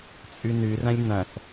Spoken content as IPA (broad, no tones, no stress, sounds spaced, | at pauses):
t͡sʼ ʉ n ʉ r ɐ̃ lʲ n̪ ɐ̃ s